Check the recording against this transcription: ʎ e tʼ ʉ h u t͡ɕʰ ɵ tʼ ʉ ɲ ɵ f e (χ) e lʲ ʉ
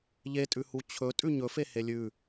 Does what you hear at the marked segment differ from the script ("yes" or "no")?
yes